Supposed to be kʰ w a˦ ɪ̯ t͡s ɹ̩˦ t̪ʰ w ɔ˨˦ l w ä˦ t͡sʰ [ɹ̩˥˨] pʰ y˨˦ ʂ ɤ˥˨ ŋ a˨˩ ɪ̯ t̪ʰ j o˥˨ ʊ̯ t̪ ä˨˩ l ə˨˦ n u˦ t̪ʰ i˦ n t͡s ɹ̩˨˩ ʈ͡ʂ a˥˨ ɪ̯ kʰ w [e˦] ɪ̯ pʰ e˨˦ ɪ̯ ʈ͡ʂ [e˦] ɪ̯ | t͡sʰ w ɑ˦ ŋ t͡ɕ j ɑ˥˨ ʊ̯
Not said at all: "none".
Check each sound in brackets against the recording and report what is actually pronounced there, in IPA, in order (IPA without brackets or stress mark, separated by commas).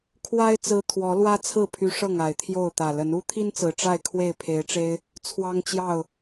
ɹ̩˥˨, e˥˨, e˦